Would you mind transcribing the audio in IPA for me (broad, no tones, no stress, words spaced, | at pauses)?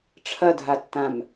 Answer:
ʈ͡ʂʰɐdʱatːãm